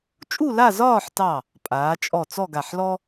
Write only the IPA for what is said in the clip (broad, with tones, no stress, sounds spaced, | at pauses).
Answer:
t͡ʃʼ u˥˧ l a˥˧ z ɒː˥˧ ħ t ɑ˧˩ | pʼ aː˩˧ t͡ʃʼ ɔ˧˩ t͡s ɔ˥˧ ɡ a˧˩ ħ l ɔ˥